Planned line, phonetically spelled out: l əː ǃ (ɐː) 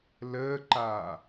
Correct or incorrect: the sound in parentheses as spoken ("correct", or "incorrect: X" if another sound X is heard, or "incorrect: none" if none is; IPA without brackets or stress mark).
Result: incorrect: aː